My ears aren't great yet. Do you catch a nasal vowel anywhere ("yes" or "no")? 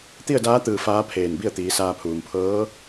no